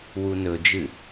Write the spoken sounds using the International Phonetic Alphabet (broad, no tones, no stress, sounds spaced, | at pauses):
w u n ɵ d͡ʒ ɨ